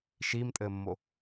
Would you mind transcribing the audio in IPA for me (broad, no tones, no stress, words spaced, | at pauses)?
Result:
ʃiːmtʼɘːmːo